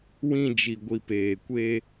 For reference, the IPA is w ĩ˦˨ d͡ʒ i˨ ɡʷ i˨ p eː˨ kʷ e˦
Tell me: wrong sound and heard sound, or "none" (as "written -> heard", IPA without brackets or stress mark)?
none